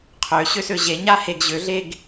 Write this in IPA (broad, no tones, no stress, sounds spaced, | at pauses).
qʰ ø ɕ ø s ø ʑ e ɲ a h e ɡ ʑ ø ɮ e ɡ